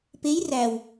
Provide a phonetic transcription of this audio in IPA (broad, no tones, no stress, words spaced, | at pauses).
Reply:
pej ræw